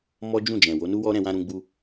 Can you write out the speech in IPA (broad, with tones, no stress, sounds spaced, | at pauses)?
m ɔ˦ d͡ʒ ũ˦˨ d͡ʒ ɛ̃˨ w o˨˦ n u˦ w ɔ˦ ɾ ɛ̃˧ w ã˧ ɾ ũ˧ ɡ͡b u˧